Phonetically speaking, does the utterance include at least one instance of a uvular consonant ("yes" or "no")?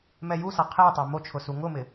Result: yes